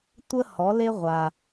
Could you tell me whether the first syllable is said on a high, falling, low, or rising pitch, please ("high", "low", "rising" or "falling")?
high